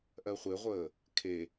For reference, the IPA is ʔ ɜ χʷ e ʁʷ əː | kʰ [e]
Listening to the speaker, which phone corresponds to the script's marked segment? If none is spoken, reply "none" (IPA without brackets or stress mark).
e